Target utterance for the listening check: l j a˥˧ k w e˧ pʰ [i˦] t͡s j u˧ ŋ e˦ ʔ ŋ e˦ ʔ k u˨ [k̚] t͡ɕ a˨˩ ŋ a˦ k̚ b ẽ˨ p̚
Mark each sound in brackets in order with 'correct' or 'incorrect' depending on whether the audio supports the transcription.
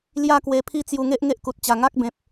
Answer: correct, incorrect: t̚

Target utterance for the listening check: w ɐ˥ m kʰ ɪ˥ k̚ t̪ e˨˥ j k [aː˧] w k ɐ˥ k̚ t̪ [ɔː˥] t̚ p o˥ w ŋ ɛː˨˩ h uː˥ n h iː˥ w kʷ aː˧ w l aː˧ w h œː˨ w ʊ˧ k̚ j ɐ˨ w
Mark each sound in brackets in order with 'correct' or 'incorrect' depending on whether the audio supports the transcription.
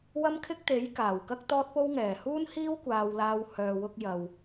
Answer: incorrect: aː˨˩, correct

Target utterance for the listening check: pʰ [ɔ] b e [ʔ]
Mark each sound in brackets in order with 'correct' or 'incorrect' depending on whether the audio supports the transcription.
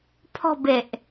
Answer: incorrect: ɔ̤, correct

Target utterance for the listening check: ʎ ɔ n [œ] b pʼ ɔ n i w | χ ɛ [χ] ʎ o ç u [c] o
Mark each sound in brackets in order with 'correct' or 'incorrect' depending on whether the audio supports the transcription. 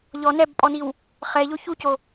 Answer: incorrect: ɛ, incorrect: none, correct

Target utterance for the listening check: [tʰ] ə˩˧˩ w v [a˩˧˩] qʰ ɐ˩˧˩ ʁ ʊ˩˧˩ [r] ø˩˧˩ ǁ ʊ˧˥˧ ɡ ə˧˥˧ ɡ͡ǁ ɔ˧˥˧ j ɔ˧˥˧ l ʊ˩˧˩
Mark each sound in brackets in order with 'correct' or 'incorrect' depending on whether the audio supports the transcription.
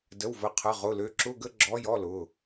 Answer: incorrect: d, incorrect: ə˩˧˩, incorrect: l

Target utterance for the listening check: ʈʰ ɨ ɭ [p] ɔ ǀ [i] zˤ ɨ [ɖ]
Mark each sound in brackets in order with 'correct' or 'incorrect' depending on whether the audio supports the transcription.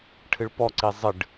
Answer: correct, correct, correct

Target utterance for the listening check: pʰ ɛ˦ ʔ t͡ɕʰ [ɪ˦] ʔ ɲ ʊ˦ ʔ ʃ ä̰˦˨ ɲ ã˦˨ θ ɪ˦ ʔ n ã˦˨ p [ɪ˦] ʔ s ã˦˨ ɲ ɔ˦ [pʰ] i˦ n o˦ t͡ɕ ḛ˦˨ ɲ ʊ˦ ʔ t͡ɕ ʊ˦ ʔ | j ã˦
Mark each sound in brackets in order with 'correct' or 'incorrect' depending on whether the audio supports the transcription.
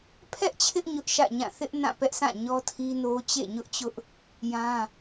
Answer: correct, incorrect: ɛ˦, incorrect: tʰ

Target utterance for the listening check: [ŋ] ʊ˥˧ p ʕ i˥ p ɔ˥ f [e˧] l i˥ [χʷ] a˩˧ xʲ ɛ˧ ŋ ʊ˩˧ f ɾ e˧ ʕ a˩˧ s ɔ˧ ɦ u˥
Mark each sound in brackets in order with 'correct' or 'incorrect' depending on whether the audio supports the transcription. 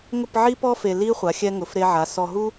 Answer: correct, correct, correct

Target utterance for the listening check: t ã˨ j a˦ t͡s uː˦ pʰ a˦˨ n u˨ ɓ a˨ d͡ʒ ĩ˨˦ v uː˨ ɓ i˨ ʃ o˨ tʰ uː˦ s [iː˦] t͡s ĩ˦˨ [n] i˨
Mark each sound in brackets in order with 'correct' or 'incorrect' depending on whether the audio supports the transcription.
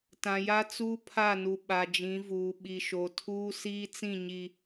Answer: correct, incorrect: ɲ

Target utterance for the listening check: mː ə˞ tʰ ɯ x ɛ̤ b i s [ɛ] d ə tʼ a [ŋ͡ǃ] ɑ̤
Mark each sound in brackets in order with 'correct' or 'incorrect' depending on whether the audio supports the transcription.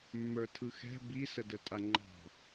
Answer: incorrect: ə, correct

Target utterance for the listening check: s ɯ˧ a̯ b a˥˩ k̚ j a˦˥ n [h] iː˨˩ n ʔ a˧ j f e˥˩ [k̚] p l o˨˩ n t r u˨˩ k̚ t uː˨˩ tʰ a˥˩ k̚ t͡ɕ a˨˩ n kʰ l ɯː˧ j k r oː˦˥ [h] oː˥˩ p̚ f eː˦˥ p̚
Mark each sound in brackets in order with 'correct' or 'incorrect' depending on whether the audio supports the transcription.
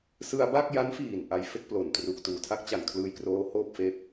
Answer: incorrect: f, correct, correct

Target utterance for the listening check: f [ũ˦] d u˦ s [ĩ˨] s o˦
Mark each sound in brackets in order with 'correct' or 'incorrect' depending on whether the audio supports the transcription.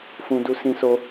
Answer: correct, incorrect: ĩ˦

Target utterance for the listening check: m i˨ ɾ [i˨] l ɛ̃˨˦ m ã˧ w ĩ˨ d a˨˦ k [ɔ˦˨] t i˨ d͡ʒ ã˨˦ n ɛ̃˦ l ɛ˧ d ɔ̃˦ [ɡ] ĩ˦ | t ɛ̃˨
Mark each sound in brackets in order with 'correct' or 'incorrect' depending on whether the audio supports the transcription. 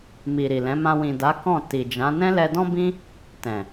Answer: correct, incorrect: ɔ̃˦˨, incorrect: b

